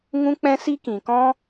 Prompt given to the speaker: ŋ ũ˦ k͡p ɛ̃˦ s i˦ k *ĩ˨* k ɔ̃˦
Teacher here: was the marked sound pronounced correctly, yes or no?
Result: yes